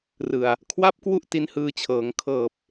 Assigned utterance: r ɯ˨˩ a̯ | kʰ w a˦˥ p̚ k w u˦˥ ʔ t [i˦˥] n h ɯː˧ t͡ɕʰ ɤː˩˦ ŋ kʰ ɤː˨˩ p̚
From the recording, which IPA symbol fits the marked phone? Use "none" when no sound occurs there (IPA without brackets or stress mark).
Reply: i˦˥